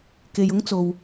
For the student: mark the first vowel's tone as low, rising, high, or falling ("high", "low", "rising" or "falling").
low